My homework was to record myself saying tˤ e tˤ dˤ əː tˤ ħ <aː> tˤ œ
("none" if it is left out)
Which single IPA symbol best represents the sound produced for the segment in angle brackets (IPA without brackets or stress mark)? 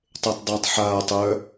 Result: aː